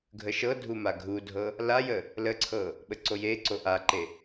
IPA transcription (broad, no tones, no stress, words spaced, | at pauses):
ɡʱəʃɤdʱu maɡʱudʱɤ | lajə | ləǀʰɤ | ɓəǀojeǀo ʔaǃe